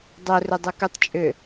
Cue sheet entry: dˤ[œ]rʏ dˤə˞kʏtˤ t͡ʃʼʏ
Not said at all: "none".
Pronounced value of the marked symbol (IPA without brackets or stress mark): œ